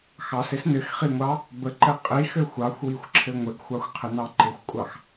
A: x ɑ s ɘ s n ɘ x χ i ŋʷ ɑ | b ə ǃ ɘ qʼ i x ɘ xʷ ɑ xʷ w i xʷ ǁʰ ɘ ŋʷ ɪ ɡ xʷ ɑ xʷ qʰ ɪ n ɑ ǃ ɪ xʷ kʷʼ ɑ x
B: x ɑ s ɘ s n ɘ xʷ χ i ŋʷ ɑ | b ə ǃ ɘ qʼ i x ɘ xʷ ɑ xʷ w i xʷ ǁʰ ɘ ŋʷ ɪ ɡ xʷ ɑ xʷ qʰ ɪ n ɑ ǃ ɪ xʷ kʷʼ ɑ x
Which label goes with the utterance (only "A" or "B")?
A